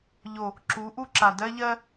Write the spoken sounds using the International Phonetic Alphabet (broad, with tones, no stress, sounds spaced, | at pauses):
ʎ o˨ | ǁ u˨˦ ʔ u˦ ǁ a˨ d ɜ˦ ʎ ɜ˦